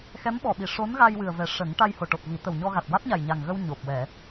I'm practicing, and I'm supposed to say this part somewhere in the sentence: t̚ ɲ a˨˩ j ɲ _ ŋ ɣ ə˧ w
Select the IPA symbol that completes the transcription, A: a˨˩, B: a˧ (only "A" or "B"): A